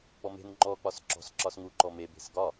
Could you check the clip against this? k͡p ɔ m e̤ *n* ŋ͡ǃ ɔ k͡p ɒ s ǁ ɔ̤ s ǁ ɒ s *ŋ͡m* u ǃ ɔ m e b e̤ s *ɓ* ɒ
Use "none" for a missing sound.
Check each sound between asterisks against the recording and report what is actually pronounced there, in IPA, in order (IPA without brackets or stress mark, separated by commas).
n, ŋ, ɡ